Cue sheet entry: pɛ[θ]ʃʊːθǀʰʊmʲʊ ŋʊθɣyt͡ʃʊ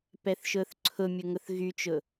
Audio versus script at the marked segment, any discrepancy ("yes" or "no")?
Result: no